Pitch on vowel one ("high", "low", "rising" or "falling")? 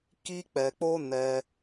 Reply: high